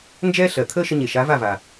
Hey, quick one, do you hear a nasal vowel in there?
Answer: no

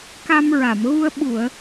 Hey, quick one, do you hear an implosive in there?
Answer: yes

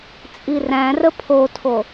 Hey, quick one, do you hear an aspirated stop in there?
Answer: yes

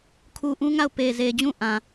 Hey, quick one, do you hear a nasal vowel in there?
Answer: yes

